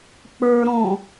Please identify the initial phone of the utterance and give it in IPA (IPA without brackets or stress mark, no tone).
k͡p